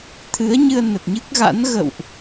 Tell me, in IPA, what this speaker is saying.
t̪ʰɨ˨˦ə̯ɲɨ˧ə̯ nə˨˩t̚ɲɨ˦˥k̚ ɣa̰˧˥n ɣə̰˧˨wʔ

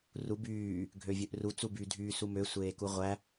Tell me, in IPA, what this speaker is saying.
ru byː | ɡʱøvʲøʔru t͡suby dʱyːsumø sʷeːkuʁʷæ

